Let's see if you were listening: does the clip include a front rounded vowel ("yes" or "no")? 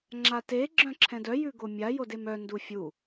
yes